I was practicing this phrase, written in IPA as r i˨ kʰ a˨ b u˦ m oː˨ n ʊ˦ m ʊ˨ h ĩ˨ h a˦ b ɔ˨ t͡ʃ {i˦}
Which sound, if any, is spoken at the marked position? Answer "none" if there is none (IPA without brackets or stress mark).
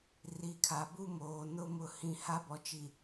i˨